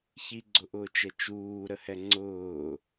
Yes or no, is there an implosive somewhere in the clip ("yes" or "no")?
no